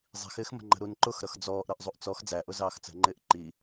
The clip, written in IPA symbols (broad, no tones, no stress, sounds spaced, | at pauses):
zˤ i̤ x ɪː x m ə̤ ŋ͡ǃ ə̤ ɾ u n ǃ ʊ x ɾ ʌ x d͡z ɔː ʔ ɾ ʌ ʔ zˤ u ʔ t͡s ɔ x d͡z æ ʔ ʊ z ɑː x t͡s ə̤ ŋ͡ǃ ɪː ʔ ǃ i